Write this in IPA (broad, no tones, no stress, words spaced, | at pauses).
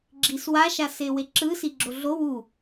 ɡ͡ǁiswa ʃaseweǁɯ siɡ͡ǁoɮo wu